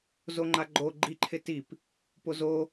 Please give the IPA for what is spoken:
z o ŋ͡ǃ a ɡ͡ǃ o ɡ͡ǃ i ǃʰ ɪ t i p | p o z o

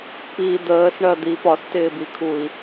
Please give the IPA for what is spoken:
p i d̪ əː s ɳ ɜ d̪ i p ɒ s t ɪː b i kʰ u i̯

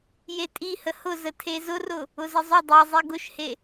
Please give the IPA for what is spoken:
j e tʼ i h ə h ʊ z ə tʰ e z ʊ r ʊ | ʊ z ə zˤ ʊ dˤ e zˤ e ɡ ʊ ʃ h e

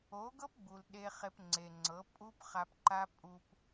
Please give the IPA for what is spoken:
o˨˦ ɡ ɤ˦ p ɡ͡b u˨ l ɗ e˧ χ e˧ p ŋ͡ǀ e˨ ŋ͡ǀ ɤ˨˦ pʼ u˦ p χ a˧ p ǃ a˦ pʼ u˦ p

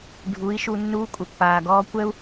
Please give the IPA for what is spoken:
ɖʱ u˨˦ i̯ ʃ u˧ nː uː˧ kʷʼ ə˨ pː aː˨ ɡ ɔː˧ kʷ ɛ˦ u̯

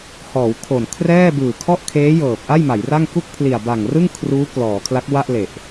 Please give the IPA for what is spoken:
h ɔː˩˦ w kʰ o˨˩ n kʰ r ɛː˥˩ b ɯː˨˩ kʰ ɔ˥˩ ʔ kʰ eː˦˥ j ɤː˨˩ p̚ ʔ a˥˩ j m a˩˦ j r a˥˩ ŋ k u˥˩ k̚ pʰ l i˨˩ a̯ b a˨˩ ŋ r ɯ˥˩ ŋ kʰ r uː˦˥ k l ɔː˩˦ kʰ l a˦˥ k̚ w a˥˩ ʔ l e˨˩ ʔ

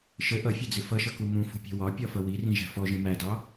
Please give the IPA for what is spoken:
ʃ ə ʔ ʌ fʲ ə d͡z ɪ f ʌ ʃ ʌ k u m ũ f ṳ pʲ ɛ̤ w ɒ pʲ ɒ f ʌ w i r ĩ ʒ æ̤ f ɔ ʒ ĩ m æ d ɑ

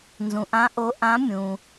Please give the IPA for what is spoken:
n z ũ˨ ʔ ã˧˥ ʔ o˧˥ ʔ ã˧˥ mʲ ũ˨

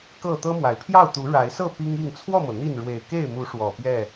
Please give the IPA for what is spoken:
k ɤ˥˨ t̪ ɤ˦ m w a˨˩ ɪ̯ pʰ j ɑ˥˨ ʊ̯ t̪ u˨˦ ɻ a˨˦ ɪ̯ s ɤ˥˨ p i˦ ŋ i˥˨ ŋ t͡sʰ w ɔ˥˨ m ɤ˩ n̪ i˥˨ n ɻ w e˨˩ ɪ̯ k e˥˨ ɪ̯ m u˨˦ ʂ w ɔ˨˩ p j ɛ˥˨

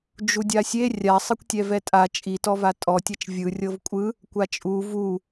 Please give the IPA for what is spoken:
d͡ʒ u dʲ a sʲ e rʲ a sˤ ɯ kʷ tʲ ɛ v ɛ tʼ a t͡ʃʼ i t ɔ v a tʼ ɔ tʲ ɛ t͡ʃ vʲ ɯ rʲ ɤ v kʷʼ ɯ | kʷ a t͡ʃʼ u v u

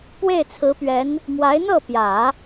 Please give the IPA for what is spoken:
p w e˥˩ ɪ̯ t͡sʰ ɹ̩˧˥ p ɥ ɛ˧˥ n | m w a˧˥ ɪ̯ n̪ ɤ˥˩ p j ä˨˩˦

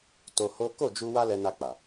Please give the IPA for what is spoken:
t o˧ h o˦ k o˦˨ d͡ʒ u˧ w a˦ l ɛ˧ n a˧ k͡p a˨

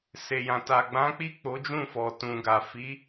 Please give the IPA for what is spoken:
s e˨ j ã˨ t a˨ ɡ͡b ã˨˦ k͡p i˦˨ k͡p o˨˦ d͡ʒ ũ˦˨ f ɔ˨ t ũ˨ ɡ a˨ f i˨˦

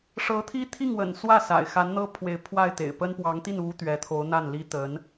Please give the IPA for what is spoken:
ʂ ɤ˧˥ t̪ʰ i˥ t̪ʰ i˥˩ ŋ w ə̰˨˩ n s w ä˥˩ s a̰˨˩ ɪ̯ x a˧˥ n n̪ ɤ˥ pʰ w e˧˥ ɪ̯ pʰ w a˥˩ ɪ̯ t̪ ḛ˨˩ ɪ̯ p ə˥ n p w ɑ˧˥ ŋ t̪ i˥˩ n u˥ t̪ ɥ ɛ˧˥ t̪ʰ o˧˥ ʊ̯ n̪ a˥˩ n l i˥ t̪ ə˧˥ n

